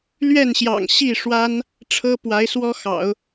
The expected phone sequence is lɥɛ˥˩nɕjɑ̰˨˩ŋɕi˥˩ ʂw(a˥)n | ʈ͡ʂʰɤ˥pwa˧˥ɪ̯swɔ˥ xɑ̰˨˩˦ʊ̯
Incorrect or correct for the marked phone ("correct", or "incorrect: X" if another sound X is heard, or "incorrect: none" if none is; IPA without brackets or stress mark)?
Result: correct